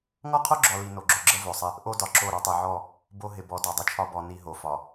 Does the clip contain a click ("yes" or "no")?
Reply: yes